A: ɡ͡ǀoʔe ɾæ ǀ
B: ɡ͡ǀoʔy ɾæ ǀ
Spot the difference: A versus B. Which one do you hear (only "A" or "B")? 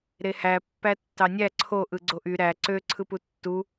B